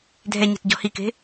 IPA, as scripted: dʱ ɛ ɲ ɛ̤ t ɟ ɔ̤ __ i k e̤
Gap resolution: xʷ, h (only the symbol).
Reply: h